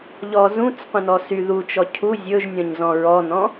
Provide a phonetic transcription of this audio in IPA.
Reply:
ʎɔzũt͡s qʷə̃nɔsy ðut͡ʃɔ cʰu zʲɵʒnʲɔ̃ɲzɔ̃ ɹɔnɔ̃

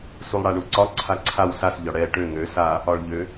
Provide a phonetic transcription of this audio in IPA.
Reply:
sulˠɽaɳuǀɒ ǀʰaǀʰaw sas ʎɒɽɛ ʈø ŋø sa | ɒɭʎø

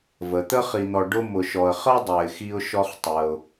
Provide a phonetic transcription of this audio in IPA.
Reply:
və˩t̪ə˦χi˨n̪ɔ˨ ɖʊ˥ mʊ˨ʃɔ˨ə̯χɜ˥ dˤɛ˨ɪ̯xi˦ʊ̯ʃɔ˦χ tˤɜ˨ʊ̯

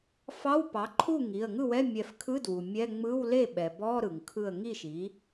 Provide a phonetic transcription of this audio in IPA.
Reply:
fɑ˧˥˧wpɑ˩˥ǃʰu˥˩ ŋi˩˧˩ə̯ŋɯ˥˩wɛ˧˥˧ mʲɛ˧˩fkʰɯ˧˥˧ dwu˩mʲɛ˧˥˧ ŋ͡mɯ˧˥˧wle˥˩ ɓɛ˩bɔ˧˥˧ ɾɯ˩ŋkʰɯ˧˩ə̯ ŋi˥˩ʃi˩˥

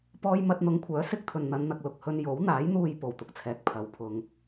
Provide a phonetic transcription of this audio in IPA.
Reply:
pɔː˥j mɐ˧t̚n̪ʊ˨˧ŋkʷʰœː˨˥ sɪ˥k̚t̪ʰɵ˨n n̪ɐ˨˧nn̪ɐ˨k̚lʊ˨k̚hɵ˧n jo˨˥wn̪aː˨˥jn̪uː˧j po˨wt̪ʊ˨k̚t͡sʰɛː˨˥k̚ pʰɐ˨wpʰʊ˧ŋ

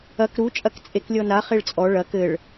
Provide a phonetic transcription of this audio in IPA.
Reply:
ɐk ɾut͡ʃʼɐk t͡sʼeklʲɔna χeɭt͡sʼɔ ɭɐ kɘɭ

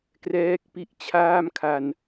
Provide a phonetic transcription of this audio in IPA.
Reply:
krɛː˦˥k̚pi˥˩ʔ t͡ɕʰaː˥˩mkʰa˧n

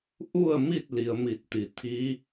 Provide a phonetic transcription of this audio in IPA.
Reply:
ʔu˥˨ə̯mi˥˨t̚ li˩˧ə̯mi˧˩t̚t̪i˩˧t̪ʰiː˧˥

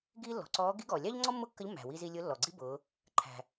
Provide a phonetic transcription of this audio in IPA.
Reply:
ɡiː˥ lːɔ̤˩˧ǀɔː˧˥ ɡi˧˥ɡɔː˩lʲɑ˥ʎŋ͡ǀɔ˥ mːʊ˥kːə˧˥ʎ mːæ̤˩wi˧zi˧ lʲʊ˧˥lːɔ˩ɡ͡ǀi˥bʊː˩˧ | ǃʰæ̤˩

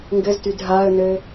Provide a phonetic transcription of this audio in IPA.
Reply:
ŋɡɘztyd ɦaə̯nɘ

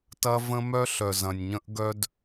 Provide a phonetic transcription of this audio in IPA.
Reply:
tɐ˦və̃˦ mœ˦ɬœ˨zɐ̃˨nʲɲə̃˦ʔ ɡœ˦d

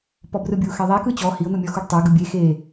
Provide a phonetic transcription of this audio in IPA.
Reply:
pɔbrɯbʲuxɛ ðˤɛ kɯt͡ɕɔ hio̯n̪ɯmʲɔ xuɖtˤɛ ɡɯbʲe xe

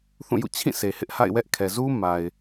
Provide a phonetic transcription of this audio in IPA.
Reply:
θũ˦˨jṵ˦˨ t͡ɕʰĩ˦˨se˨ hɪ˦ʔha̰˦˨ɪ̯wɛ˦ʔ kʰɛ˨zu˦ ma˨ɪ̯

